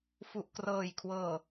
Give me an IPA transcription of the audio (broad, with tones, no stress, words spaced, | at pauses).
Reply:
fu˨˩ʔkrɤː˨˩jkʰwɤː˨˩